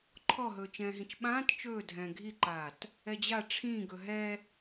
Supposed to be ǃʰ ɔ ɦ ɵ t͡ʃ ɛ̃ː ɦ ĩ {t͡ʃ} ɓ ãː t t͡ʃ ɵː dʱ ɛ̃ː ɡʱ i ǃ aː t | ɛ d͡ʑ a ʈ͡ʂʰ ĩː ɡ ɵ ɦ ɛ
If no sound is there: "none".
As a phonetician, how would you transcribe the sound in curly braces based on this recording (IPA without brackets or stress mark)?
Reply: t͡ʃ